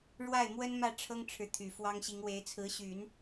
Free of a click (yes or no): yes